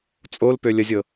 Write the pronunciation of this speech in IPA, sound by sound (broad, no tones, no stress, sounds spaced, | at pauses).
t͡sʼ o l p ø lʲ ə zʲ ɤ